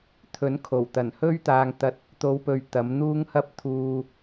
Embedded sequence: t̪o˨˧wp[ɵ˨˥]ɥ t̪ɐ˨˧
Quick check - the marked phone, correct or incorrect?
incorrect